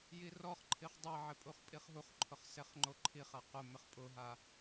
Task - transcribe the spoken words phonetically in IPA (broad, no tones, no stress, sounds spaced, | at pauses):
j i r ɔ χ ǃʰ i χ dˤ e ʕ ɪ pʼ u χ pʼ i χ ɦ u χ ǃʰ ʊ χ s e χ ŋ͡ǃ o ǃʰ i χ a q ʊ m ɪ χ pʼ ʊ ɦ a